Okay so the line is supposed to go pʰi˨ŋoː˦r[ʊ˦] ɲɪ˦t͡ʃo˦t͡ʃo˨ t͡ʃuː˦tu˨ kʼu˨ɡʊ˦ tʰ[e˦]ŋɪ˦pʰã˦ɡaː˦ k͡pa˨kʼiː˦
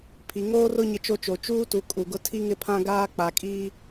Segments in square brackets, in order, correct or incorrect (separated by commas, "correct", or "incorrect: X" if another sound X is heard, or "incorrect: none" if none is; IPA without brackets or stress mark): correct, incorrect: i˦